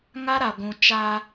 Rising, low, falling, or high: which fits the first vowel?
high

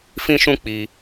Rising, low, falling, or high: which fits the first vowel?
high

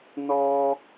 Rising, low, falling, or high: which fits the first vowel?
high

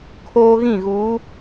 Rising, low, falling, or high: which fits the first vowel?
high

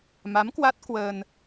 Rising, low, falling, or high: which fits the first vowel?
rising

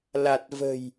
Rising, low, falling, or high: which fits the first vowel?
low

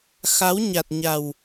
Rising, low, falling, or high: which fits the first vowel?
rising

